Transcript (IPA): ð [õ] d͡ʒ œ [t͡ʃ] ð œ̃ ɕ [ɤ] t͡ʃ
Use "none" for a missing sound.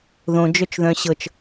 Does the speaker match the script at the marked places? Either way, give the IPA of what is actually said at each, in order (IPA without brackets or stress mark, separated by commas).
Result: õ, t͡ʃ, ɤ